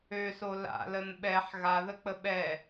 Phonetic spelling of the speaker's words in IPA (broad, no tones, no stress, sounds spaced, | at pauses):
ø s o l a̰ l ə n ɓ ɛ ħ ɣ a ð ə k͡p ə ɓ ɛ